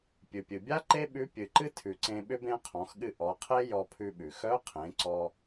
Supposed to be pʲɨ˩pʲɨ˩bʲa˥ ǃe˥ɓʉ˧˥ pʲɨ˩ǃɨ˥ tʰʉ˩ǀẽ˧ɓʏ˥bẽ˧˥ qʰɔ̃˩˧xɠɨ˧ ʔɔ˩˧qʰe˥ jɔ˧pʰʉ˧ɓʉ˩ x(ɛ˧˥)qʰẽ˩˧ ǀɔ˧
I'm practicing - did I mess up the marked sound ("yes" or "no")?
yes